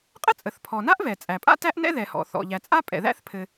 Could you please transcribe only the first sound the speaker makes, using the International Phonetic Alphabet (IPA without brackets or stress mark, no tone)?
qʼ